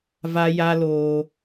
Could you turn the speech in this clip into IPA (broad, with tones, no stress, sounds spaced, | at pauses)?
v a˧ j a˧ l oː˧